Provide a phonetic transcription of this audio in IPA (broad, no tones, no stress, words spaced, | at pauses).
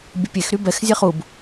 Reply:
bʲəpʲex ɾybɛx zʲɛχub